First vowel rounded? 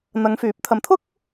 no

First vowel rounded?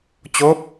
yes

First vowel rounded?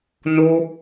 yes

